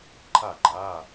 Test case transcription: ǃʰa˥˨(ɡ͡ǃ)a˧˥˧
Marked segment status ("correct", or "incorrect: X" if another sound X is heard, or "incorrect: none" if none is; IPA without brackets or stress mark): correct